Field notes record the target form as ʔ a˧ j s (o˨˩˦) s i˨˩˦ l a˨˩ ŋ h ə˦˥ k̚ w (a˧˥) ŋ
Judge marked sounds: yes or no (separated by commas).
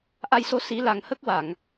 no, no